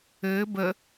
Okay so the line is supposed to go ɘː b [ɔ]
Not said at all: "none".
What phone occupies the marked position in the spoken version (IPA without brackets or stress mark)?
ə